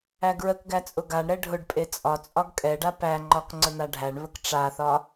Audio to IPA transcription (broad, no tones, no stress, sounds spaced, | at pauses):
æ ɡ ɹ ə k ɡ æ t͡sʼ ʊ ɡ a ɳ ɾ ɛ ɖʱ ʊ ɖ pʼ e t͡sʼ ɒ t͡sʼ ɒ ɡ kʼ ɛ ɖ a p æ ŋ͡ǃ ɒ k ŋ͡ǀ ə n̪ a ɖʱ æ ɳ β ə k ʈ͡ʂ a θ ɒ